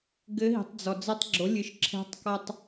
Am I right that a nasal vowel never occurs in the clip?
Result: yes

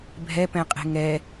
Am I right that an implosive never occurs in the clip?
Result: yes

